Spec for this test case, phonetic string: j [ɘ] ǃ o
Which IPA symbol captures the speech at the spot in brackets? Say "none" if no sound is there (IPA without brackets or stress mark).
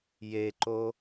e